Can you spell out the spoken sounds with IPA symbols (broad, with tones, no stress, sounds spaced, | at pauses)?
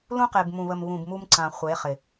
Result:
l ũ˦ q e˨ b m ũ˨ β ə˨ m β ũ˨ b m u˦ m ǀ ã˨ χʷ e˨˦ χ ɪ˨